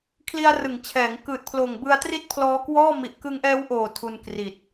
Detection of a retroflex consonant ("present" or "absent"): absent